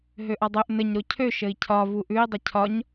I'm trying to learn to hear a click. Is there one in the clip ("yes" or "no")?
no